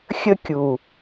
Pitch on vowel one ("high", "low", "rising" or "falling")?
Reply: high